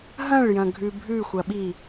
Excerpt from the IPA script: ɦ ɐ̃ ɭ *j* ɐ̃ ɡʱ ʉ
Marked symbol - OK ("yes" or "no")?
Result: yes